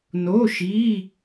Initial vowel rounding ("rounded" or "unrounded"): rounded